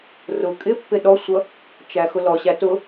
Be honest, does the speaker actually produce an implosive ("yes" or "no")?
yes